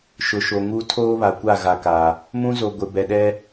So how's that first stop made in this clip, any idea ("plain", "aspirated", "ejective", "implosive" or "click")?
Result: aspirated